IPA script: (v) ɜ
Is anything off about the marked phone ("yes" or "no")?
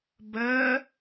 yes